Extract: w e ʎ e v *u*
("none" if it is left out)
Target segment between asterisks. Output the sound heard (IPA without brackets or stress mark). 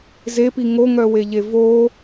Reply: o